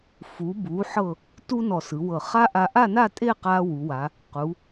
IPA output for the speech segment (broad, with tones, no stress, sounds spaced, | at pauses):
f u˩˧ b u˩˧ ħ ɤ˧˩ | t u˥ n ɔ˧˩ s ɯ˩˧ w ɤ˧˩ χ a˥ ʔ a˧ ʔ a˥˧ n a˥˧ tʼ e˥˧ q a˧ w u˩˧ w a˩˧ | q u˩˧